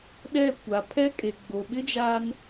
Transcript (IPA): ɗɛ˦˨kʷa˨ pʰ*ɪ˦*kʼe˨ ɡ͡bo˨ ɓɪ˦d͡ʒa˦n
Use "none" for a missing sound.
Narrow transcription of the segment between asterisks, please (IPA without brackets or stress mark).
ɛ˦